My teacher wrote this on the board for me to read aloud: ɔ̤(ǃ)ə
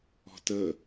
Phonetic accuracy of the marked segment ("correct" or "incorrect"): incorrect